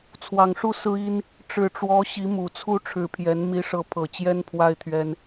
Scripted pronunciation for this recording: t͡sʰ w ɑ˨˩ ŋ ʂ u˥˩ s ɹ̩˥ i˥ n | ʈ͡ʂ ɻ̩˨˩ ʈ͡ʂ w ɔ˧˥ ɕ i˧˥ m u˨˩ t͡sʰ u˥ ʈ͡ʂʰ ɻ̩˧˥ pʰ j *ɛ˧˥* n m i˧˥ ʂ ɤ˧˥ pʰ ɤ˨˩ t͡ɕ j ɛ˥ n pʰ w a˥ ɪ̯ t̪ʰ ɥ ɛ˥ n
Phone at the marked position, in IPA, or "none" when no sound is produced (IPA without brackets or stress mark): ɛ˧˥